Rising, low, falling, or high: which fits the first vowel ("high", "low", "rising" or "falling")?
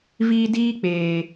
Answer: low